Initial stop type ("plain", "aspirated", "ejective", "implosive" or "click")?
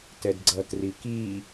plain